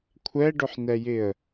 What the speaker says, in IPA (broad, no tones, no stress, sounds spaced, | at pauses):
kʷʰ ɛ ɖ ʊ ħ n ɛ j ɪ ə̯